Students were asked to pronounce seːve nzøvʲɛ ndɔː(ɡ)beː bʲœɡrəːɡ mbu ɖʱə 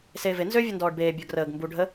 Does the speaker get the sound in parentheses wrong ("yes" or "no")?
yes